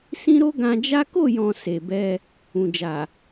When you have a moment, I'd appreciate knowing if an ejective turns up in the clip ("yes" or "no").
no